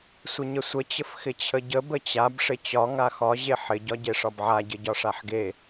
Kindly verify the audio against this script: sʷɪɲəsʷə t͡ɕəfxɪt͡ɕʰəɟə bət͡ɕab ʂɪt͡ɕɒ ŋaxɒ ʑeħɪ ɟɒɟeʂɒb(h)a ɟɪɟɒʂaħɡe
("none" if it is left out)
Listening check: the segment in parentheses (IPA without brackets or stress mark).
ʕ